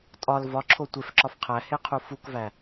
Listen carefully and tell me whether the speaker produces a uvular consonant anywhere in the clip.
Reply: yes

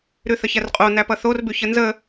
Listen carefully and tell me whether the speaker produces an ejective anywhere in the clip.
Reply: yes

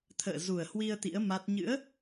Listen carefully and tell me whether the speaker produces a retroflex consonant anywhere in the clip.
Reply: no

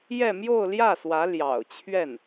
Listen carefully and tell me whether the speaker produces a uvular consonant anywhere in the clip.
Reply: no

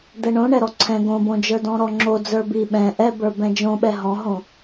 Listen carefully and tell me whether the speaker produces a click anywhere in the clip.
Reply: yes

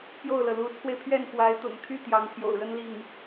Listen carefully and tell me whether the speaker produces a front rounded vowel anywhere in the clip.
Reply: yes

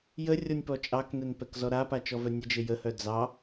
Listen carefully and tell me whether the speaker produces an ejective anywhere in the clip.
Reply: yes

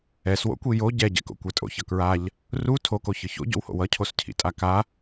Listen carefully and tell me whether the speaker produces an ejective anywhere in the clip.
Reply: yes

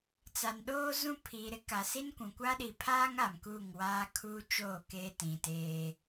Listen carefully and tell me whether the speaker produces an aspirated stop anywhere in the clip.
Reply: yes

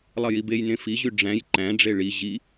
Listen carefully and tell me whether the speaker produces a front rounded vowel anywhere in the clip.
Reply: yes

